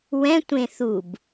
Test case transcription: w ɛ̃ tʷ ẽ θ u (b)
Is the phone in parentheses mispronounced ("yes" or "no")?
no